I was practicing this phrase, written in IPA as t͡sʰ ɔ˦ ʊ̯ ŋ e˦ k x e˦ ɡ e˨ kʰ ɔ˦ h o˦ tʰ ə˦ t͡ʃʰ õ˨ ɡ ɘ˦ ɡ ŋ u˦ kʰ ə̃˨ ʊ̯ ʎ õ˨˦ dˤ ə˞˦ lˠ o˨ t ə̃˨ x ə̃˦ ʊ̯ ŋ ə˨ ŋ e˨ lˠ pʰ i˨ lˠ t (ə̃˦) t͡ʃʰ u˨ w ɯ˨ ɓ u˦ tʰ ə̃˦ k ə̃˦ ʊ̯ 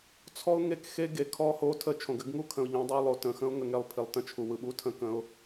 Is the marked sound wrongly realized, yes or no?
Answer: no